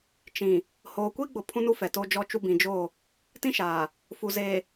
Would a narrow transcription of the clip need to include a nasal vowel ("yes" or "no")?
yes